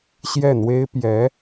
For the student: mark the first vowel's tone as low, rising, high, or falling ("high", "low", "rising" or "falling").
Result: falling